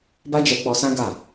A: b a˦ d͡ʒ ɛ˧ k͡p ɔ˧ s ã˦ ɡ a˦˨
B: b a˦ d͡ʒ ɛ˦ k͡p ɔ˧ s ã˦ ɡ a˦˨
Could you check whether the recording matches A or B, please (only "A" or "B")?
A